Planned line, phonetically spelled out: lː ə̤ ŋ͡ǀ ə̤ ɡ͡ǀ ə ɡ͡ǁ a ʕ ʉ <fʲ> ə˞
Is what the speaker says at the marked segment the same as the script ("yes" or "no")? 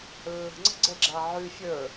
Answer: yes